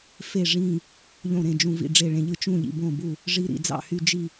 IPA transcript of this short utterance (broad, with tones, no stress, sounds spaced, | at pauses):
f e˥˨ ʐ ĩ˥˨ | ʎ õ˥˨ ɾ ẽ˥˨ d͡ʒ ũ˦ v ḭ˥˨ ɖ͡ʐ e˥˨ ɭ ẽ˦ ʎ ɯ˦ t͡ʃ ũ˥˨ ʎ ḭ˥˨ b õ˥˨ b u˥˨ | ʐ i˦ ɾ ḭ˥˨ d͡z ɑ̰˥˨ h y˦ d͡ʒ i˥˨